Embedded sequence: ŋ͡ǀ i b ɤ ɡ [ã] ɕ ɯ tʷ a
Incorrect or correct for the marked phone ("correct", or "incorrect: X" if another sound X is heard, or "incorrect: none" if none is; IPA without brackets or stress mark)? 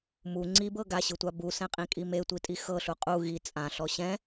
incorrect: a